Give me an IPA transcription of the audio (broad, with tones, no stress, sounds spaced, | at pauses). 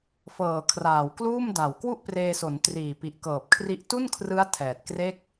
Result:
f ɤː˨˩ kʰ r aː˨˩ w k l uː˥˩ m d a˨˩ w k w u˥˩ ʔ p r eː˧ s o˩˦ n t r iː˨˩ p i˨˩ ʔ k ɤː˨˩ p̚ kʰ r i˦˥ ʔ t u˥˩ n kʰ r ɯ˦˥ a̯ tʰ ɛː˨˩ t̚ k r e˥˩ k̚